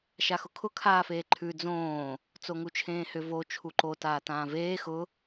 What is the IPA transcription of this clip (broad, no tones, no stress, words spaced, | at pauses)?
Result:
ʃaxʊkʰʊ kʰaːfeːǃʰʉ d͡zõː | t͡soŋut͡ʃʰẽːhʏ vo t͡ʃʰuǃo taːtãːveː xʊ